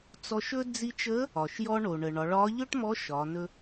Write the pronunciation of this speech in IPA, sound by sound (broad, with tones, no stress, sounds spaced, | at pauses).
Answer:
t͡s ɔ˧ ʃ ɵ˥ d͡z i˧ t͡ʃ əː˧˥ | ɒ˩ ʃ j ɔ˧ ɳ o˩ ɳ əː˩ ɳ ɒ˩˧ ɭ ɒː˧˥ ʎ ɵ˥ ʈ m ɔ˧˥ ʃ ɒː˩˧ n ɵ˧